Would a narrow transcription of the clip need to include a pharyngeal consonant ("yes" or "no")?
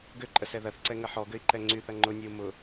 yes